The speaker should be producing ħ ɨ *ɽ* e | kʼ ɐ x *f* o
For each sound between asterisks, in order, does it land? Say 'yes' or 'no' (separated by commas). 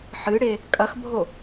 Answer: yes, no